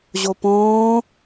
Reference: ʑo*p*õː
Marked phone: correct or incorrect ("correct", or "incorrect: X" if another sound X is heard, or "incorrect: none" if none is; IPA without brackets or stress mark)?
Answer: correct